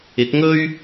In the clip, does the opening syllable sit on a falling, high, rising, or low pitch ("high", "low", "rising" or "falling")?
rising